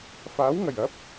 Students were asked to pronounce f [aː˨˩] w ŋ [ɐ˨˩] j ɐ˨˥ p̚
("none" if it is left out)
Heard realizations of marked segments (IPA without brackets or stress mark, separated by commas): aː˨˥, ɐ˨˩